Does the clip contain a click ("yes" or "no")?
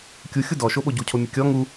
no